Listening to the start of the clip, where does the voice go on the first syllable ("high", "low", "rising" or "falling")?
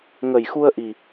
low